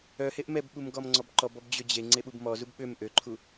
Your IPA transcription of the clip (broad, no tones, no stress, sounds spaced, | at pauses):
œ h e ʔ m ɛ b ɓ u m ɡ ɔ m ŋ͡ǀ ɔ b ǃ ɔ b ɔ b d͡ʑ ø d͡ʑ e ŋ͡ǀ e ɓ u b m ɔ z u b ɓ ø m ʔ ø ǃʰ u